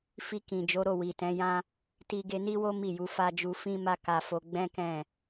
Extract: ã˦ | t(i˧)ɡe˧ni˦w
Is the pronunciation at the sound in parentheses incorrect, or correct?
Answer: correct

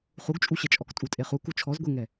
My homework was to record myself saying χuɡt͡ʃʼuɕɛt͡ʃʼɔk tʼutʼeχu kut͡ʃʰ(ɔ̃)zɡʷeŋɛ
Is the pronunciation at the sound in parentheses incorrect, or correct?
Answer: incorrect: ɔ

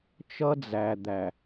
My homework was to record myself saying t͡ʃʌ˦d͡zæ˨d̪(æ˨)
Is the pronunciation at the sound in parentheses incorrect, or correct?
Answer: correct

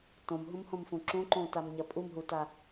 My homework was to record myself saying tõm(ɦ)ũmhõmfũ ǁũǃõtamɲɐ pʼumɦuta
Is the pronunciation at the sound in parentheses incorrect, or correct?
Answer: correct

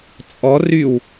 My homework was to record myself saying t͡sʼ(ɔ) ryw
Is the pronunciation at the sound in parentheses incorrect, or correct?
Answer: correct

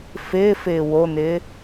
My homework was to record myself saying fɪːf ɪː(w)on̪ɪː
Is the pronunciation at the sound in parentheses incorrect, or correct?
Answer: correct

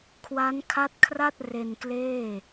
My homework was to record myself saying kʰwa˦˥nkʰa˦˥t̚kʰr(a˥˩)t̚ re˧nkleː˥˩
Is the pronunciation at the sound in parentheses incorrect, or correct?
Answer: correct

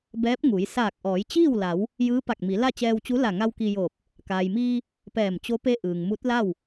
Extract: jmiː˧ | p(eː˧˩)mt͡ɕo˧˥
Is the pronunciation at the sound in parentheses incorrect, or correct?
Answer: incorrect: ɛː˧˩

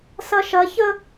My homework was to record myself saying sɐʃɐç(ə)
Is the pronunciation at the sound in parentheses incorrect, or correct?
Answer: correct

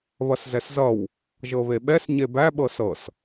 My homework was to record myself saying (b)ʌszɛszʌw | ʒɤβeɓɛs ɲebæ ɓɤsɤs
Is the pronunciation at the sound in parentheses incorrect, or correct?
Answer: incorrect: β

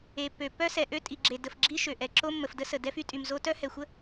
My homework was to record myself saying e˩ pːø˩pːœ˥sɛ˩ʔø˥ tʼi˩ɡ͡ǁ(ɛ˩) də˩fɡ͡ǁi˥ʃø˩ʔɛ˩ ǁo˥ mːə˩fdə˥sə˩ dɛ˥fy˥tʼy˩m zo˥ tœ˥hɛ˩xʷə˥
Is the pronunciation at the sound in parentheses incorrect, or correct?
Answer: incorrect: e˩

